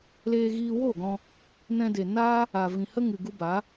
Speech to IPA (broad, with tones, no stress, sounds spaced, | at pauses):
l eː˧ ɣ iː˧ w o˦˨ ɡ ɔ̃˧ | n ɛ̃˧ d e˨ n aː˦ | a˨ v ĩ˨ h ə˦ ŋ ɨ˨ ɡ u˧ b a˨˦